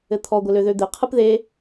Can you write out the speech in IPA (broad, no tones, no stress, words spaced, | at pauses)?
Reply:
ɘt̪ʰɔ ɡʷɘløðød̪e qʰɯpðe